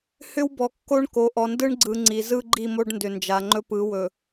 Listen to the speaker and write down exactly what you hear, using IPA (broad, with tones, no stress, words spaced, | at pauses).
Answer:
hʏ˦wbɔ˨kːo˦ɳko˨ ʔɔ˨ndɯ˦ɳɡ͡ǀɯ˨ ŋ͡ǀi˨zɯ˦ɡ͡ǃi˦˨mo˦ɖ ndʏ˨nd͡ʒa˨ŋ͡ǃɵ˦ pɯ˨˦wɵ˨